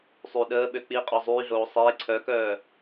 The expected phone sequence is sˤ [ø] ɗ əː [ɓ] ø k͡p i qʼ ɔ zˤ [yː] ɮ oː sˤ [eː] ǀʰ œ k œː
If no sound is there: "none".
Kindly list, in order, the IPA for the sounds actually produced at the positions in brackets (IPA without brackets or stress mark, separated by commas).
y, ɓ, yː, eː